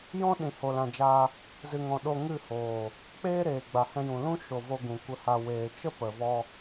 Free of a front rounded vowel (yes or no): yes